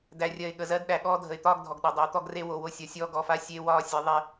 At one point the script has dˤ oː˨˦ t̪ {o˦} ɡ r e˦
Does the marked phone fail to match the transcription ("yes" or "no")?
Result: yes